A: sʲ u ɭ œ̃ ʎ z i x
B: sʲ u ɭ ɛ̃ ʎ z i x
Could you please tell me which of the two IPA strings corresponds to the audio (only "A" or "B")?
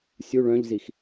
A